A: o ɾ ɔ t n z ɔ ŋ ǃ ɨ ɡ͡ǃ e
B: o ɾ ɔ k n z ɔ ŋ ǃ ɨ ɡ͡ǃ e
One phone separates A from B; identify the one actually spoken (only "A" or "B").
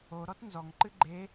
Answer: A